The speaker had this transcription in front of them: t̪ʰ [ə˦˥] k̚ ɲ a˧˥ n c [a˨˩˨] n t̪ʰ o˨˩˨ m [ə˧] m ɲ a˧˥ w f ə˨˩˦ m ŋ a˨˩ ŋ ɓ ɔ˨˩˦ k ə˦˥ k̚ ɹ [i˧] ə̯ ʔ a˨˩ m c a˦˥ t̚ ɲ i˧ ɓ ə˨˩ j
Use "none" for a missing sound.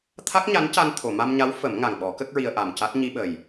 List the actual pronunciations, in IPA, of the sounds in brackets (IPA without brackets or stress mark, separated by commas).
a˦˥, a˧, a˧, i˧